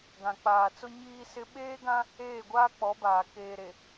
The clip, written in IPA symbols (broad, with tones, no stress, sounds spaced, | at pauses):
ɡ ã˨ k͡p aː˨ t͡s ʊ˦ ɲ iː˦ s ɪ˦ ɓ eː˦ ɡ ã˦ | eː˦˨ ɡʷ aː˦ k͡p ɔ˨˦ b aː˨ k eː˨ ɾ e˨